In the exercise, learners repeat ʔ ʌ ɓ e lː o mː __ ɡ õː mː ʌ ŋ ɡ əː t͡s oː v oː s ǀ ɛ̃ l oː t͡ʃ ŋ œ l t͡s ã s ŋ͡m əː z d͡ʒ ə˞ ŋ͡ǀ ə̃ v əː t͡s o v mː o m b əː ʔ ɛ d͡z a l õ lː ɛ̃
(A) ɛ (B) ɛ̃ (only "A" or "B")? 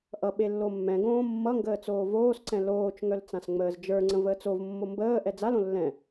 B